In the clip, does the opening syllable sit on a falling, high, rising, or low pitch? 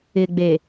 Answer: low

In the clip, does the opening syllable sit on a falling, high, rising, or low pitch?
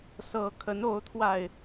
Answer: rising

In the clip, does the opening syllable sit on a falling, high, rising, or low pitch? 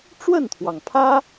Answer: falling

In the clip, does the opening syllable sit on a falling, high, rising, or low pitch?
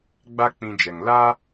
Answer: high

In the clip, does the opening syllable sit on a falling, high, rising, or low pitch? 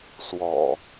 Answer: low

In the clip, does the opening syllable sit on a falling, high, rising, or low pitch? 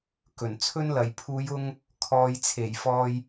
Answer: low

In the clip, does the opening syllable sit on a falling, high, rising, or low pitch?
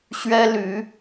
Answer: high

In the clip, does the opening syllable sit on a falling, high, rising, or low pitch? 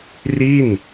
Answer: falling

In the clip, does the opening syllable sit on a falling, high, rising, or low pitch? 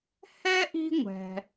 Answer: high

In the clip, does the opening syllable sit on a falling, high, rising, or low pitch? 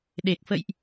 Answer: low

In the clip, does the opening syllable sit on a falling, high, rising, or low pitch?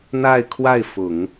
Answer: falling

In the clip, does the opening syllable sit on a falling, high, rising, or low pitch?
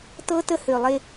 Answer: high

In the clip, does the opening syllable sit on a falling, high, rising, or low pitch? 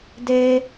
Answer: high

